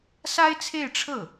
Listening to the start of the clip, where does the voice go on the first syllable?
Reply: high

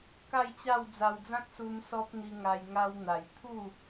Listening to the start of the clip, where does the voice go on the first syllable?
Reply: falling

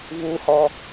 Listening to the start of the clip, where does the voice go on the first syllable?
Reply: low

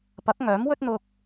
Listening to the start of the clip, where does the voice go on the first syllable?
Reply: rising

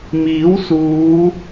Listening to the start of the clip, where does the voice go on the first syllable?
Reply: rising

